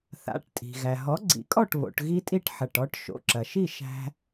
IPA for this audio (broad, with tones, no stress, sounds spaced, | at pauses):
θ a̰˩˧˩ ʈ tʼ i̤˩ ɣ æ˩ ɦ ɔ˩˥ ɡ͡ǀ ḭ˩˥ kʼ ɔ˥˩ ʈ β o̰˩˧ ʈ ɣ i˦ tʼ i˥˩ ʈ ħ ɐ˩˧˩ ʈ ɔ˦ ʈ ʃ o̰˩˧˩ ǁ ɐ˩ ʃ i˥˩ ʃ æ̤˦